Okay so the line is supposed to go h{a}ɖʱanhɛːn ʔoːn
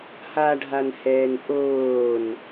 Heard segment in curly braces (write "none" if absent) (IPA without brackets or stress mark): a